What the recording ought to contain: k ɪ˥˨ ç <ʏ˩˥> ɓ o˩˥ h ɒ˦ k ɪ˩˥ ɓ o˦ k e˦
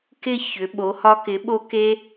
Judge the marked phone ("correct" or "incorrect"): correct